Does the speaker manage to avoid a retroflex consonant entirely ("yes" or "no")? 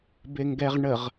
no